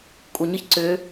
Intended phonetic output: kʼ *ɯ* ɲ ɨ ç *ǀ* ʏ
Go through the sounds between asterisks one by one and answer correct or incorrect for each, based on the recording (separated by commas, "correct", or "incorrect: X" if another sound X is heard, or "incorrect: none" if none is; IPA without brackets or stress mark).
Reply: incorrect: u, correct